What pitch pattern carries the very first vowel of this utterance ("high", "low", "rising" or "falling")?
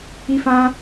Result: high